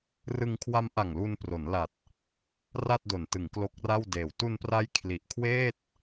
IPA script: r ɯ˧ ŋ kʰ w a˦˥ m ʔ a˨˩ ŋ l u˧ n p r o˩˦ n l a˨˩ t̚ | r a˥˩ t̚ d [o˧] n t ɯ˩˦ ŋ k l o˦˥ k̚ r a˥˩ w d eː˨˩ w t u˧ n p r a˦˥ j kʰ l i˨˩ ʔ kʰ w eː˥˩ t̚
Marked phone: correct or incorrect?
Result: incorrect